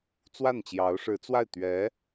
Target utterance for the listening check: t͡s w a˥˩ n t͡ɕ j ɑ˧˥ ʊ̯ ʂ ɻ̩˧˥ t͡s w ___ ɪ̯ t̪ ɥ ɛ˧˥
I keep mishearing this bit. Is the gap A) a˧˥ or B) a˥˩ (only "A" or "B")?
B